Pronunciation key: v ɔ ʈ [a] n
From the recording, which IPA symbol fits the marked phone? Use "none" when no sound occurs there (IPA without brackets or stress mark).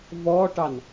ɑ